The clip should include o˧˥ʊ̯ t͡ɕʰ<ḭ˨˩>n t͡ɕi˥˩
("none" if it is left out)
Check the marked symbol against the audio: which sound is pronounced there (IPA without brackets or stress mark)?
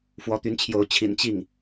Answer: ḭ˨˩